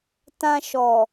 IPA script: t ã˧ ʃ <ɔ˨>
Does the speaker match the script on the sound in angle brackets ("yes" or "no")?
yes